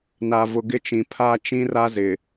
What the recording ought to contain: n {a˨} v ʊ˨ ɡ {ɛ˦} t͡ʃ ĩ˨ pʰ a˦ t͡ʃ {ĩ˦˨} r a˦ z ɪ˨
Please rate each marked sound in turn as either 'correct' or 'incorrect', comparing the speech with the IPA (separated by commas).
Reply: correct, incorrect, incorrect